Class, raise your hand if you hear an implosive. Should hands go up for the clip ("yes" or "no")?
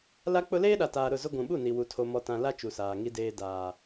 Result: yes